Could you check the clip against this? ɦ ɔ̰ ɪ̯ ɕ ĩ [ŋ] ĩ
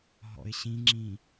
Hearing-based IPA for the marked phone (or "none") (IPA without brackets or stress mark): ŋ͡ǁ